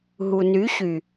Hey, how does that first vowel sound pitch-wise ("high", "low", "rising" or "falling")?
low